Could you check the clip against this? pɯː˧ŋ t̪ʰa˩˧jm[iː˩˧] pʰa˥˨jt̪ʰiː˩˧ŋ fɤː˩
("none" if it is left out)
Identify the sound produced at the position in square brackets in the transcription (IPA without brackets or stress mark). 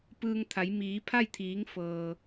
iː˩˧